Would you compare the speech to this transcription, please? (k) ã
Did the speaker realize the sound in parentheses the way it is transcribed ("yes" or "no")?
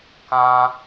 yes